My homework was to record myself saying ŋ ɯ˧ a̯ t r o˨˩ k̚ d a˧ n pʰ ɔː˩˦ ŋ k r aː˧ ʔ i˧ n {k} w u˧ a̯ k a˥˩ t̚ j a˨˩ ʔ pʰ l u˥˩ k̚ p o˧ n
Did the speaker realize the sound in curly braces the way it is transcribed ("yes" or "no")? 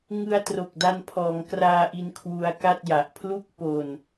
no